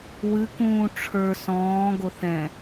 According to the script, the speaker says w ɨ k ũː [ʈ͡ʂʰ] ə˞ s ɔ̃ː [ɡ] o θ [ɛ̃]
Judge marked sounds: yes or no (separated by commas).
yes, yes, yes